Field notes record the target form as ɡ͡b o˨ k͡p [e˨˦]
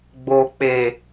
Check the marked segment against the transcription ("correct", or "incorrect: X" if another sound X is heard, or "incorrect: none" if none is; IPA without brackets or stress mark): incorrect: e˨